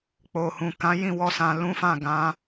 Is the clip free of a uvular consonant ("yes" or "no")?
yes